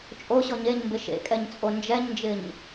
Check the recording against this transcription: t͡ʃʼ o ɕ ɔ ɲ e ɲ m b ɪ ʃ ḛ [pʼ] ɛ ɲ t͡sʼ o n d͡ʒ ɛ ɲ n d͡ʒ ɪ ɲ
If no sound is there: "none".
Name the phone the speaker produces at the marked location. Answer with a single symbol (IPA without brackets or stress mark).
kʼ